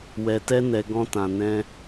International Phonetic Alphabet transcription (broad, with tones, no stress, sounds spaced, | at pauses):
w ɛ˧ t ɛ˦ n ɛ˧ ɡ ɔ̃˧ t ã˨ n ɛ̃˧